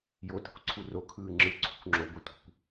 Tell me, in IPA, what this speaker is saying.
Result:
jo tə̤kʷǀʰuro kʰɯːŋ͡ǁɯ ǀʰṳkʷŋ͡ǁo ɡʷetʷə̤kʷ

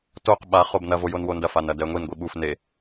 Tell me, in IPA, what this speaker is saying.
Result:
toq ɓa χobnɐ vojonwondɐ fanɐdɛŋʷin ɡʷiɓuf ne

